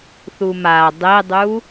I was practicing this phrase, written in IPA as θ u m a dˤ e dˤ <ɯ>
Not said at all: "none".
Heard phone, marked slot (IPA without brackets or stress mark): u